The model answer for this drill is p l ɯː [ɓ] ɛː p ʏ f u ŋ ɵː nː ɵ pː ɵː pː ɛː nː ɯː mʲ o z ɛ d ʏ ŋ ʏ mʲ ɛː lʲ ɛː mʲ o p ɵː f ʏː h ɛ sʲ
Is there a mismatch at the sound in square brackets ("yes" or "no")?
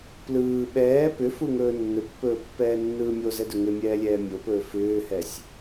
no